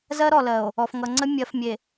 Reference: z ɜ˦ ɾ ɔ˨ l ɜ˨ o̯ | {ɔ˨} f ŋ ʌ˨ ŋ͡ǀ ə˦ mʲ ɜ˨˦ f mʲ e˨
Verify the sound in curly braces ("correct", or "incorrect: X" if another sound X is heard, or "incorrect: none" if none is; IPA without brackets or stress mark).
correct